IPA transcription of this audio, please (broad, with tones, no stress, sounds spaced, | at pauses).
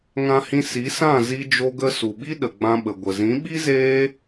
ŋ ã˧ h ĩ˧ s i˨˦ s ã˦˨ z i˧ d͡ʒ o˧ ɡ ə˧ s u˨ ɓ i˦ ɗ ə˨ ɡ͡b ã˧ ɓ ə˨ ɡʷ ə˨ z ĩ˨˦ ɓ i˦ z eː˧